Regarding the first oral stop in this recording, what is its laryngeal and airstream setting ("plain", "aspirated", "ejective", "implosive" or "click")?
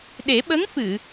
implosive